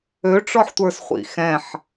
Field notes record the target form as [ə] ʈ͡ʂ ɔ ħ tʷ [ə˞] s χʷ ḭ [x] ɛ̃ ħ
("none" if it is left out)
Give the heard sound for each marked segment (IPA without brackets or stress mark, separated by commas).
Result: ø, ə˞, x